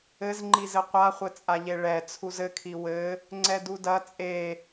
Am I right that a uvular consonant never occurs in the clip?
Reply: no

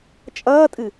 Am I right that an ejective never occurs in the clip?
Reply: no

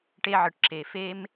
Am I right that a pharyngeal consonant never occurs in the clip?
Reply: no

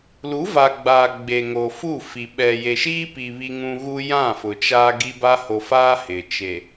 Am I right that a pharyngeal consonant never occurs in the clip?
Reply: yes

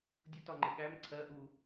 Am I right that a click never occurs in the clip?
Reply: no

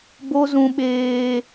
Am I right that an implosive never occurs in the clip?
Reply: no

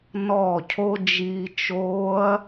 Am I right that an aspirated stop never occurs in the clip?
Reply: no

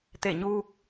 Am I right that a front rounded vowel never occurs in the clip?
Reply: yes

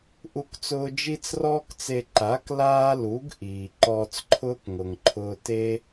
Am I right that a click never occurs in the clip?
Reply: no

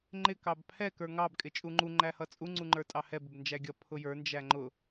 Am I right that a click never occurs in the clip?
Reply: no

